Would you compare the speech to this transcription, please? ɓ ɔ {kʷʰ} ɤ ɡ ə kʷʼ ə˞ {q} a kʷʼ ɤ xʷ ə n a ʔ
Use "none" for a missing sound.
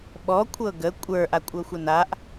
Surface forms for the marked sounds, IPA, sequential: kʷʰ, ʔ

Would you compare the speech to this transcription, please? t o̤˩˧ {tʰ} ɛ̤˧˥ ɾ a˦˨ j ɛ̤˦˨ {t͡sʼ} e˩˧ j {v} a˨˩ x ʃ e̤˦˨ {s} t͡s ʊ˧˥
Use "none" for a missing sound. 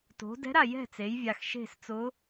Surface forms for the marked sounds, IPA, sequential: d, t͡s, vʲ, s

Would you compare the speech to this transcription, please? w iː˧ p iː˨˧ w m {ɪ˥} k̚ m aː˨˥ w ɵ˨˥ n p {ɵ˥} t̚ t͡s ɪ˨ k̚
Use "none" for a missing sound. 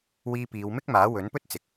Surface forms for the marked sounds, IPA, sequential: ɪ˥, ɵ˥

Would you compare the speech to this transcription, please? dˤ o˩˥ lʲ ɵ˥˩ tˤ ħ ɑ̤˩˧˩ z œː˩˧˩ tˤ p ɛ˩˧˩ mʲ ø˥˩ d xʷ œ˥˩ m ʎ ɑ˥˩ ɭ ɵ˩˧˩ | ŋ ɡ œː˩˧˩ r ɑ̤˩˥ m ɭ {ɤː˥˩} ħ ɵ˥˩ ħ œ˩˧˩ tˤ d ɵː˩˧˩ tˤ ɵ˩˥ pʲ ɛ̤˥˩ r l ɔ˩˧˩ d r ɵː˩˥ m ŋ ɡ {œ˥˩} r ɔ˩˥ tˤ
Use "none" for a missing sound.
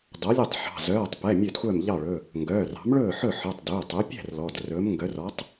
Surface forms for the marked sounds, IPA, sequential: ɵː˥˩, œ˩˥

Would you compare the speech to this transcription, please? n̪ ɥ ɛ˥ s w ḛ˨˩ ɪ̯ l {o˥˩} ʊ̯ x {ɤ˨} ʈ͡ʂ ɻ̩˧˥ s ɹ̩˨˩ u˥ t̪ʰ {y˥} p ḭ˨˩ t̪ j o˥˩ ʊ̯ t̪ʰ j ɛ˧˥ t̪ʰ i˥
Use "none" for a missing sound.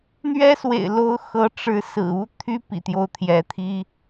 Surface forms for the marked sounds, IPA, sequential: o˥, ɤ˧˥, y˥

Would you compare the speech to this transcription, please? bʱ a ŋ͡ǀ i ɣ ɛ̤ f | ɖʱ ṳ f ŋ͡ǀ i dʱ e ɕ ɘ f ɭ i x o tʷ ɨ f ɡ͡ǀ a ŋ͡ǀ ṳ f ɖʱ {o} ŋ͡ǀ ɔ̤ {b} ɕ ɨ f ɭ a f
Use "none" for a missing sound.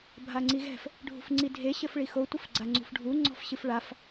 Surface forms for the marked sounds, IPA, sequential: u, f

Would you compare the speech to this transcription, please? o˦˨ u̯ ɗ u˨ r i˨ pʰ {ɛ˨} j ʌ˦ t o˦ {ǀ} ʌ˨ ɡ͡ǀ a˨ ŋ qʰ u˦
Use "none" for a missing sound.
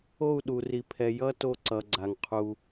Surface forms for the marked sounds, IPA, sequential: ɛ˨, ǀ

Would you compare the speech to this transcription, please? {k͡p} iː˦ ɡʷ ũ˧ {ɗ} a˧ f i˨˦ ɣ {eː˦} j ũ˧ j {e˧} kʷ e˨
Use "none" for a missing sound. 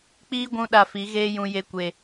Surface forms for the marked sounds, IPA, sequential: k͡p, ɗ, eː˦, e˧

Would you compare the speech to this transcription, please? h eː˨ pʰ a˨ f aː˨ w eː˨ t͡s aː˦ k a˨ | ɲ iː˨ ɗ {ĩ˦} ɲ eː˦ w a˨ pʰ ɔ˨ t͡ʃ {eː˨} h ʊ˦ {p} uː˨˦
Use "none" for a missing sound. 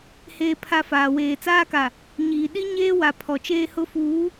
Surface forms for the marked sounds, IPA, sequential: i˦, eː˦, f

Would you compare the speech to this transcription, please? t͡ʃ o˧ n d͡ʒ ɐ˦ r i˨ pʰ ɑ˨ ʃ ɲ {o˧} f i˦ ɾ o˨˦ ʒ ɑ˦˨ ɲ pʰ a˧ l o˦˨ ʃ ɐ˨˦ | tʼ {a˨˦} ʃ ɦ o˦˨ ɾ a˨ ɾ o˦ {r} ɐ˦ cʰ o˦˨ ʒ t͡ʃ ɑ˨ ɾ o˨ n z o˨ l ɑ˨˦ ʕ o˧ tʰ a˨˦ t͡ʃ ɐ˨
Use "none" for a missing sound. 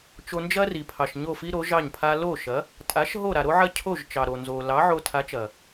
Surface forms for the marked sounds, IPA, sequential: o˦˨, a˨˦, ʕ

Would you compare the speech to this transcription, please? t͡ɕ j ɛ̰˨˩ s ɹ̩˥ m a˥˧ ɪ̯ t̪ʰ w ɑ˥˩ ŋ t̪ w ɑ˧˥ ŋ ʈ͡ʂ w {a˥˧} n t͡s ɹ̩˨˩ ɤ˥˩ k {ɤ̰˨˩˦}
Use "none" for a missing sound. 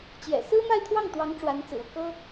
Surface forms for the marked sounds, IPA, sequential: a˧˥, ɤ˥

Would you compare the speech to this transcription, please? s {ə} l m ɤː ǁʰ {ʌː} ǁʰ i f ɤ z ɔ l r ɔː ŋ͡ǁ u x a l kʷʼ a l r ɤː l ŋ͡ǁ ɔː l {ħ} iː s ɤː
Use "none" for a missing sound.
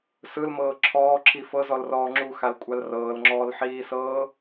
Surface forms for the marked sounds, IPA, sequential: ɯ, ɔː, ħ

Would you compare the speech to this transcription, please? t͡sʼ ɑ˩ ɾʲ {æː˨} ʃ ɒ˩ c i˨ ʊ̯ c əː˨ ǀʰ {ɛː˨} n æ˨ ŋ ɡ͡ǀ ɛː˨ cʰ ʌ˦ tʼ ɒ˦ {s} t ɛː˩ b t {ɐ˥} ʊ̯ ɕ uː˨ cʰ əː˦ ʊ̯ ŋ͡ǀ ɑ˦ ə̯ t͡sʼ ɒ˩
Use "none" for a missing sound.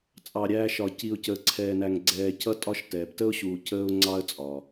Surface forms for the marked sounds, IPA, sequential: æː˨, ɛː˨, ʃ, ə˥

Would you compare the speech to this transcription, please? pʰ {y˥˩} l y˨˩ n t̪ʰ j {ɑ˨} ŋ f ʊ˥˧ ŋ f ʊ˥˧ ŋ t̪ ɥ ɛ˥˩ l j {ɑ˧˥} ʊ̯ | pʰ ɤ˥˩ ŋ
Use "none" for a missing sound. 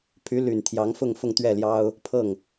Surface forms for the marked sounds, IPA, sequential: y˧˥, ɑ˧˥, ɑ˥

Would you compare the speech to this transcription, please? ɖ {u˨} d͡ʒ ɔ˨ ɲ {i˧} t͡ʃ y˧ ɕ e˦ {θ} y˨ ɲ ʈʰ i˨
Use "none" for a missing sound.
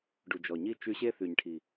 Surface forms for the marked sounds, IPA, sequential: u˨, i˦˨, θ

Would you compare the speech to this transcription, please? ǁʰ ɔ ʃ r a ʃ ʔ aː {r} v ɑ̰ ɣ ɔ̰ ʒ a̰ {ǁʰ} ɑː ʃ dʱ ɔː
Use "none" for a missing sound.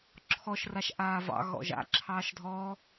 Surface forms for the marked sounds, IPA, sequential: none, ǁʰ

